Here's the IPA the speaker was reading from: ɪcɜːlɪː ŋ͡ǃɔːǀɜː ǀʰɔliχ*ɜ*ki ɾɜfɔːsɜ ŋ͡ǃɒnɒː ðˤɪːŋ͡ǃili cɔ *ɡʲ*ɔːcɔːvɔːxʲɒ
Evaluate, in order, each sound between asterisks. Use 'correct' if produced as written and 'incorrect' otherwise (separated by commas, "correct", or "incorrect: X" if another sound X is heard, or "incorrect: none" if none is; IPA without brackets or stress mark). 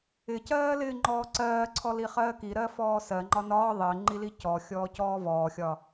incorrect: ɜː, incorrect: xʲ